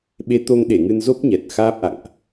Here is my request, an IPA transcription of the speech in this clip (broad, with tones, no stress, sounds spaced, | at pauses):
ɓ e˨˦ t̪ o˧ ŋ ɗ e˧˩ ŋ ɨ˧ n z o˦˥ p̚ ɲ ɛ˨˩ t̚ x aː˦˥ p̚ ʔ a̰˧˨ ŋ ʔ